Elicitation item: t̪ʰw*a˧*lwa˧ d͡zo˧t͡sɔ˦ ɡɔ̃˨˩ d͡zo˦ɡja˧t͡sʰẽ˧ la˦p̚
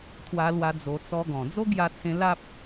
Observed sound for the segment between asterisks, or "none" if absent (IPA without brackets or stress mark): a˧